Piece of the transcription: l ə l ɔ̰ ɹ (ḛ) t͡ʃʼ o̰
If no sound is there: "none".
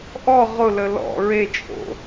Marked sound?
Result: e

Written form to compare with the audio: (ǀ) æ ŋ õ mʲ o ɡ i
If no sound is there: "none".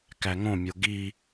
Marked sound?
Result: k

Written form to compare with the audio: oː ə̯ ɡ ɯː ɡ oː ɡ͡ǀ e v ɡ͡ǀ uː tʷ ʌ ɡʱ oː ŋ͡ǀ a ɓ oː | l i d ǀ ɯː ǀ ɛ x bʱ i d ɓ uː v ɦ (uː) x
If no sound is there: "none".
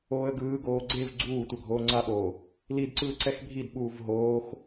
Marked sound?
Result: oː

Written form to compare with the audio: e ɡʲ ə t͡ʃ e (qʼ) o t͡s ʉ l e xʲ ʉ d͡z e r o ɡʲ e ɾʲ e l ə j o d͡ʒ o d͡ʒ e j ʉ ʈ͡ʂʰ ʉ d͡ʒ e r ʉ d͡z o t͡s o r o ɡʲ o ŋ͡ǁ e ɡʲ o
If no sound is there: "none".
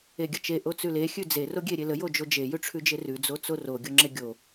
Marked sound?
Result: ʔ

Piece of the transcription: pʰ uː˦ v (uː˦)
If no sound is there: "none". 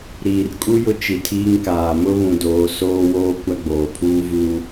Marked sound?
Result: uː˦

